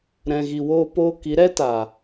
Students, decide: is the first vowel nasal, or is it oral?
nasal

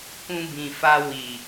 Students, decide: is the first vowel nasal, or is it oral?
nasal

